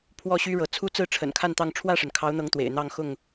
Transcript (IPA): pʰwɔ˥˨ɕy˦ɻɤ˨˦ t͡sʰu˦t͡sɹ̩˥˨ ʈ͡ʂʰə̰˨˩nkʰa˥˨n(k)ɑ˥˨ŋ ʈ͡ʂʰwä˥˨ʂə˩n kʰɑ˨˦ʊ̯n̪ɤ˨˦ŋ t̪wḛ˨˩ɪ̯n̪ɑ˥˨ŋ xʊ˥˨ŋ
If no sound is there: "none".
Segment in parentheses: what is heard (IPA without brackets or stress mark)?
t̪